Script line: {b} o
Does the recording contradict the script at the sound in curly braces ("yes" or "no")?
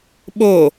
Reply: yes